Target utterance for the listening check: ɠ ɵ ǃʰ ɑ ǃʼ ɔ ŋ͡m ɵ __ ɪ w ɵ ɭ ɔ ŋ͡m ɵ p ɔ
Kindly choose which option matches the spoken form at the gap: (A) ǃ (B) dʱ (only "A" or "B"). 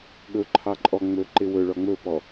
A